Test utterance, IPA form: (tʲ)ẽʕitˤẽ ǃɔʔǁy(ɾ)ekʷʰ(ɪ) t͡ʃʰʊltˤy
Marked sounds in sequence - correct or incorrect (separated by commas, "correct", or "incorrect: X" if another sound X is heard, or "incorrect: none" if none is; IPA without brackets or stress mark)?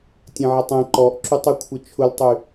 correct, incorrect: tˤ, correct